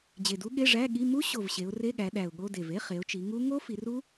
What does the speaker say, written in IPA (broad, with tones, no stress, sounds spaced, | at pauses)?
d͡ʑ e˨˩ d u˦˥ ɠ e˧˥˧ ʐ æ˧˥˧ ɠ i˧˥˧ m u˦˥ ɕ o˨˩ v ɕ e˩˧ ʊ̯ r e˧˥˧ ɠ æ˩˧ ɗ æ˨˩ ʊ̯ ɠ o˧˥˧ d e˨˩ v e˧˥˧ χ e˩˧ ʊ̯ t͡ʃ i˩˧ ŋ u˦˥ ŋ o˦˥ f i˩˧ r u˦˥